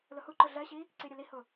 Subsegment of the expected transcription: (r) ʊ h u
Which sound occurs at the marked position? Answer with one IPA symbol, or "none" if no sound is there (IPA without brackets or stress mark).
l